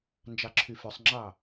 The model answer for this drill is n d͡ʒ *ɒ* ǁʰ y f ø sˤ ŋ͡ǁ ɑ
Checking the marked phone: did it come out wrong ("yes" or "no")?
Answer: yes